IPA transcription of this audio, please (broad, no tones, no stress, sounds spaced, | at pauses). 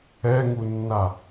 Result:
ɛ ŋ u nː a